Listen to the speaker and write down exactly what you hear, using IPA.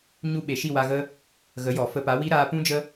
ɲ u˧ ɓ e˨ ʃ i˦˨ w a˧ ɣ ə˦ | ɣ ə˨˦ j ɔ˨ f ə˧ p a˨˦ w i˦ ɾ aː˧ p ũ˦ d͡ʒ ə˦

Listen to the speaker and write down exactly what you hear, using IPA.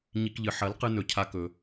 ɲ i˧ k ʎ ɨ˨ ħ ɐ˨˦ l q ɨ˧ n ɵ˧ cʰ a˦ k ɵ˧

